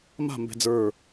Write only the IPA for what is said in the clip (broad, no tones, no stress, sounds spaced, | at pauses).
m a̤ m b ɛ̤ d͡z ə˞